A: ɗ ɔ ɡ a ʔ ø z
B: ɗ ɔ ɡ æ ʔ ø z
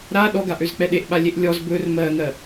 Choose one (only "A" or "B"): A